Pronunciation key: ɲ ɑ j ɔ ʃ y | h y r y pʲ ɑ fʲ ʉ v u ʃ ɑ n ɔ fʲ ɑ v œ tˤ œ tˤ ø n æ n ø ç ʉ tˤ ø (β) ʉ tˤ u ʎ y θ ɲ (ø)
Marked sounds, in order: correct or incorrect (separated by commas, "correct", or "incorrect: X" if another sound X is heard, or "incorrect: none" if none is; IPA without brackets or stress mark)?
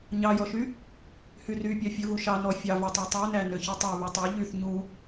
correct, incorrect: u